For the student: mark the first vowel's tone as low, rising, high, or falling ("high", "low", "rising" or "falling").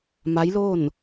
rising